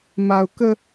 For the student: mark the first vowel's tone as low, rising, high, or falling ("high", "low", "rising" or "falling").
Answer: low